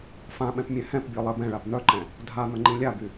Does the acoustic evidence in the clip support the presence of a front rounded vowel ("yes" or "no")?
yes